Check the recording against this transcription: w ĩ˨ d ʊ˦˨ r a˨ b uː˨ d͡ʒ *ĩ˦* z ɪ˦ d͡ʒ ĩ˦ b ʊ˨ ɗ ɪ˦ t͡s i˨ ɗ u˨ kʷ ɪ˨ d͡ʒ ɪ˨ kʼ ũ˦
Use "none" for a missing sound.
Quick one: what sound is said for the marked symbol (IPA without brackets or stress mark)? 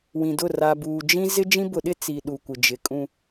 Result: ĩ˦